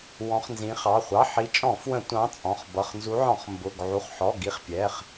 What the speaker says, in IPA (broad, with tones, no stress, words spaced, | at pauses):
wɔ̃˨˦χnzĩ˨˦χɑ˩˧˩ χʷɑ˩˧˩ħi˨˦t͡ʃʼɔ̃˧˩˧ fwə̃˧˩˧ tʷɑ̃˨˦ t͡sʼɔ̃˩˧˩χbʌ˩˧˩χnzu˨˦ʕɔ̃˧˩˧χ mbʊ˩˧˩ɡ ʕu˩˧˩χħɔ˩˧˩ ɡi˨˦χpʲɛ˩˧˩χ